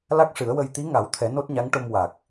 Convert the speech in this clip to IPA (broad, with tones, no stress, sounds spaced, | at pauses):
l a˦˥ k̚ ʂ ɨ˨˩˦ ə̯ w ə˧ j t̪ i˧˥ ŋ a˨˩˦ w t̪ʰ ɛ˨˩˦ n o˦˥ t̚ ɲ a˧˥ ŋ ʈ o˧ m w a˨˩ k̚